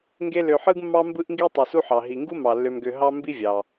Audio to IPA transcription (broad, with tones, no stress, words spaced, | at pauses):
ŋɡe˦lø˨ħɯ˥ɡmːɑ˥ mbɯ˥ʔŋɡi˥ tˤe˨su˥ħɑ˩ ɦi˩ŋɡu˥mɑ˩ lːø˨mɡø˨ ɦɑ˥ mbi˥vʲɑ˩